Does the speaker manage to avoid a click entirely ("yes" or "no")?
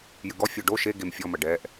yes